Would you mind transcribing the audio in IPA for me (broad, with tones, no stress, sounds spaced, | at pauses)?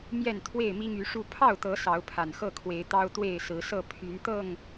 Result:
m j ɛ˥˨ n t̪ʰ w e˥˨ ɪ̯ m i˦ ŋ y˨˦ ʂ u˥˨ pʰ ɑ˥˨ ʊ̯ t̪ ɤ˨˦ s ɑ˨˦ ʊ̯ pʰ a˨˩ n x ɤ˥˨ kʰ w e˨˦ ɪ̯ t̪ ɑ˦ ʊ̯ t̪ w e˥˨ ɪ̯ s ɹ̩˨˦ s ɤ˥˨ pʰ y˨˦ n t̪ ɤ˥˨ ŋ